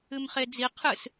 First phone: ɨ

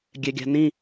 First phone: ɡʲ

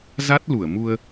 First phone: z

